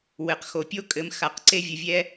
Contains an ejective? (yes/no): yes